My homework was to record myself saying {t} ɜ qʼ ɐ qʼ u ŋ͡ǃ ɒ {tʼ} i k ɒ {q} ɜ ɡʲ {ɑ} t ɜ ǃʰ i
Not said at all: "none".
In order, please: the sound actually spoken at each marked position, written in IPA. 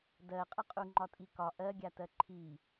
d, tʼ, ʔ, a

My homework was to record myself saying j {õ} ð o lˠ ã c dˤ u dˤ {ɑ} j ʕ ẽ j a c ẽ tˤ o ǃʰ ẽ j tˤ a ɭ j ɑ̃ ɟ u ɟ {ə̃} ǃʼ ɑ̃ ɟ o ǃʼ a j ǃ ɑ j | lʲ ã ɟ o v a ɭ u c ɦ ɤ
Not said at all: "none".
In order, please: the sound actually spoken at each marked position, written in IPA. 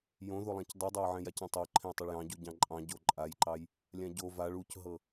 õ, ɑ, ɑ̃

